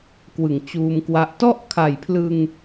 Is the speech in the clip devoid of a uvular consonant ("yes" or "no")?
yes